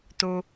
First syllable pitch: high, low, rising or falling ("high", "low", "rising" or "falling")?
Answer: low